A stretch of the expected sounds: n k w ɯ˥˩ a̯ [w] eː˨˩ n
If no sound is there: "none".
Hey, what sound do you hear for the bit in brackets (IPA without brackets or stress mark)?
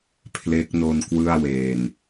w